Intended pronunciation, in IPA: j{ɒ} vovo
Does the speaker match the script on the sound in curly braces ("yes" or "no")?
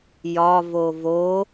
yes